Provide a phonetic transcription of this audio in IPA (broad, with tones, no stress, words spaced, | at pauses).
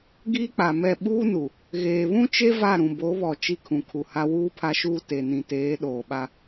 ɡiː˦k͡pa˨mɛ˦˨ ɓuː˦nu˨ | ɣeː˨βũ˦t͡ʃe˦ va˦˨ɾũ˨bo˨˦ βɔ˨ t͡ʃi˦kʰũ˨kʰu˨ha˦ wuː˦pʰa˦ʃuː˦ te˨nĩ˨teː˨˦ ɗoː˨ɓa˦